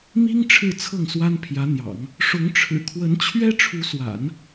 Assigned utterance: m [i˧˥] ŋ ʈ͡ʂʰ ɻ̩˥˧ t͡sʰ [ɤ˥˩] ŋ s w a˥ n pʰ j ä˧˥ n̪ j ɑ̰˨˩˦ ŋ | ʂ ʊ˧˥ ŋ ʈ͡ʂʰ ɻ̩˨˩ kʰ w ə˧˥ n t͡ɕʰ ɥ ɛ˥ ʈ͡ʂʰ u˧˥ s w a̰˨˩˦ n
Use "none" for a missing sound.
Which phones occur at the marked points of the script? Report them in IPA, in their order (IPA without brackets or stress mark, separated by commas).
i˥, ɤ˥˩